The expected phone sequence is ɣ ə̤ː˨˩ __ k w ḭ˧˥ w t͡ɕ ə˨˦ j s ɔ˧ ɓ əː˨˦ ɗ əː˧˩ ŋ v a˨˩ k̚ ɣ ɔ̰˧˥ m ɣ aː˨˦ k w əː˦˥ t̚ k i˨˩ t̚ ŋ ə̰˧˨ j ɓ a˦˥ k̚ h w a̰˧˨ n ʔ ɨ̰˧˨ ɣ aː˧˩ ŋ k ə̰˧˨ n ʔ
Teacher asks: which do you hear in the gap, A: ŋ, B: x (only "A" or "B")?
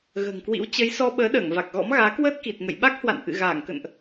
A